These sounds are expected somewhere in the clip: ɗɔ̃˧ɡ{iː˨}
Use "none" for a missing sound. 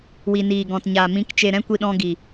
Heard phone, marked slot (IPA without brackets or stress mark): iː˨